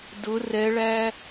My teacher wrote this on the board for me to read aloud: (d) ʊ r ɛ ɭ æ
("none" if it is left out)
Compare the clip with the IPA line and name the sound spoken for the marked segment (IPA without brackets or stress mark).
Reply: d